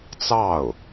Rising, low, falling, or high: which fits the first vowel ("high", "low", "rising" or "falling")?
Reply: falling